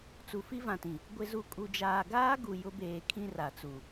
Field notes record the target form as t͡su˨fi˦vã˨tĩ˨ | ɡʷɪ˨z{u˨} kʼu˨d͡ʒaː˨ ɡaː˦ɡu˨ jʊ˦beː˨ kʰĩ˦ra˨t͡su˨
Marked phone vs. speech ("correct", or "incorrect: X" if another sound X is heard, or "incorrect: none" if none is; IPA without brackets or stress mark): correct